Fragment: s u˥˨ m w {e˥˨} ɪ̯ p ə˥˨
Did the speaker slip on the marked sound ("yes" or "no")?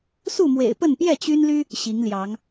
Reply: yes